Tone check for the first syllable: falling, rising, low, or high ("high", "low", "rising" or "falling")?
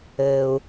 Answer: low